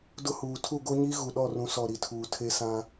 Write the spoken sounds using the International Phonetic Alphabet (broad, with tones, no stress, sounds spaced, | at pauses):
d ʊ˦ h uː˨ tʰ u˦˨ ɡ o˦ ɲ iː˦ ɣ u˨ ɗ ɔ˦˨ r ũ˨˦ s ɔ˨ ɾ i˨ tʰ uː˨ tʰ e˦ s ã˦